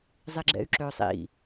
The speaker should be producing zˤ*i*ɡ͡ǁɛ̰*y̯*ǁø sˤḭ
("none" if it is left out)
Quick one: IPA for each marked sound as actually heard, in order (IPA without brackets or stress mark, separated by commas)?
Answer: i, y̯